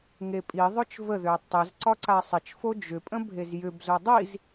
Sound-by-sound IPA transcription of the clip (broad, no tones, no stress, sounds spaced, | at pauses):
ŋ e pʼ i ðˤ ø t͡ʃ v ə ð ø tˤ ɪ z ǀ ɒ ǀ a sˤ ɪ t͡ʃ f o d͡ʒ ʏ pʼ ə̃ bʱ e z j ʏ b z o dˤ i z